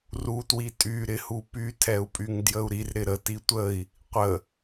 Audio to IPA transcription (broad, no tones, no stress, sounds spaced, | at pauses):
r u t w i tʼ y ɾ ɪ h u p y tʰ ɛ u̯ pʼ y ŋ d j ə u̯ ɾ i r ɾ ɪ ɾ ə t i tʷ ə i̯ | qʷ ə